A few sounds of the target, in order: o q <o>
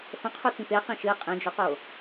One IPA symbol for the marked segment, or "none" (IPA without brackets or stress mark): o